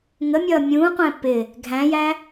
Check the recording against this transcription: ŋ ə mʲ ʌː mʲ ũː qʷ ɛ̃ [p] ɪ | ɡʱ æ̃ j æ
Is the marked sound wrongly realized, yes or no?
no